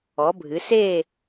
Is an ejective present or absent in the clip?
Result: absent